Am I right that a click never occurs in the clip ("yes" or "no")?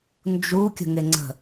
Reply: no